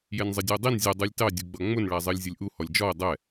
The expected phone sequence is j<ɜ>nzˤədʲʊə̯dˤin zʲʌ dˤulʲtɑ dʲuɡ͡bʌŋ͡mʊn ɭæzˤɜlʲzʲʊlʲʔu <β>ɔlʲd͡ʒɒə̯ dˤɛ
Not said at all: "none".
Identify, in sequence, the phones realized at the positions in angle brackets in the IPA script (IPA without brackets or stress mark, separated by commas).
ɛ, h